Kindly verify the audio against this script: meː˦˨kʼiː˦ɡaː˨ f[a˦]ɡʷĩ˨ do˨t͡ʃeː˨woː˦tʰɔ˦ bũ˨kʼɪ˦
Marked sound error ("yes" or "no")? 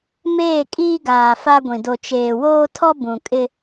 no